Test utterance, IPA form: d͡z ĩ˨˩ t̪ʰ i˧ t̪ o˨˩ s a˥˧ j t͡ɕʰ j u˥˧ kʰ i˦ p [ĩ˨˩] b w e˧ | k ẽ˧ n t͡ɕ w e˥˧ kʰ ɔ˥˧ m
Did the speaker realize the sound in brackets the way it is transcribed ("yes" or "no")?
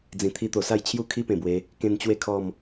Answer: no